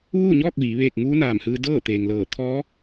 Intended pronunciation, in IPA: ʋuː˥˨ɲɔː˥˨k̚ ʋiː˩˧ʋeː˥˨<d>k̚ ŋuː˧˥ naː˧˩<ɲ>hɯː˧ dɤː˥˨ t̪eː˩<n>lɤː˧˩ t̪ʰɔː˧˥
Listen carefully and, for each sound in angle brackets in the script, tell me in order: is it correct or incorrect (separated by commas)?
incorrect, incorrect, incorrect